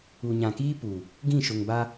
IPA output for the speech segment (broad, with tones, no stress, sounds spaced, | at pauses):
u˨ ɲ ã˨ k iː˦ p u˨ | ɡ ĩ˦˨ ʃ ʊ˨ ŋ b a˦